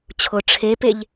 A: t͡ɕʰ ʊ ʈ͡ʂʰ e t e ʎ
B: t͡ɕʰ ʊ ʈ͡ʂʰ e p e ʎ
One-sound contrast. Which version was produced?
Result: B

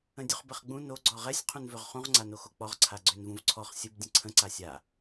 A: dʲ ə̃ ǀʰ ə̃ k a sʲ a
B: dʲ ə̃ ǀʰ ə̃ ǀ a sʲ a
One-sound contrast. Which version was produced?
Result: B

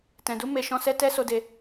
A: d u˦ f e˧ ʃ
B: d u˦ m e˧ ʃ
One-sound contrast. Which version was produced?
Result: B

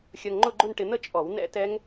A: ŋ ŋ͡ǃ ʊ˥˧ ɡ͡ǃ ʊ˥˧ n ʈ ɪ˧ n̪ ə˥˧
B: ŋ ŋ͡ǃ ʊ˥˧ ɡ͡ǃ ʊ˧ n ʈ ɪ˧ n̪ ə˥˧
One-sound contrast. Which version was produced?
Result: A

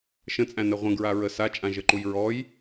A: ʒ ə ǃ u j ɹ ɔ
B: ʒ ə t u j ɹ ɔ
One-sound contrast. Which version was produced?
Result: A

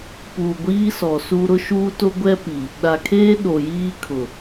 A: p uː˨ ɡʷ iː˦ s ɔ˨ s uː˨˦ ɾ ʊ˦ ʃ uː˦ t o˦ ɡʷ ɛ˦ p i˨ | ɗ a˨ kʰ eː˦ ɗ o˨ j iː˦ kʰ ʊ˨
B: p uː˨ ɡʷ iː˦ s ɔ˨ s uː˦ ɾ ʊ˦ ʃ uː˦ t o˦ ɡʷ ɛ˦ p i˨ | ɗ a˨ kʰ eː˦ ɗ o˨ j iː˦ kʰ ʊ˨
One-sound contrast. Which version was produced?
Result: B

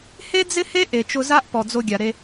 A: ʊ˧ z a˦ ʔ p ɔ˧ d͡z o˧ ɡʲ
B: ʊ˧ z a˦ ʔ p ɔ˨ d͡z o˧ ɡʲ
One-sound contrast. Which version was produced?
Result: B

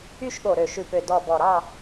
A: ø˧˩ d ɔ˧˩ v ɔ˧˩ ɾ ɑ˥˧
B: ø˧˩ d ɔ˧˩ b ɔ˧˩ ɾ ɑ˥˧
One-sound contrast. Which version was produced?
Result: B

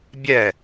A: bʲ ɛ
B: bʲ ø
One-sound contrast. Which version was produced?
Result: A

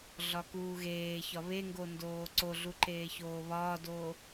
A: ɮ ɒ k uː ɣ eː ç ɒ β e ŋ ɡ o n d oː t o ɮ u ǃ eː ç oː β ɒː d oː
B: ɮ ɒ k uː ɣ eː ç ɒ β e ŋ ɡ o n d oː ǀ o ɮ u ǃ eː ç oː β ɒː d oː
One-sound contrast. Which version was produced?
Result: B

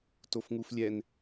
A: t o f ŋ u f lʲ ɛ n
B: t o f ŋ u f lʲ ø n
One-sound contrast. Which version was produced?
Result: A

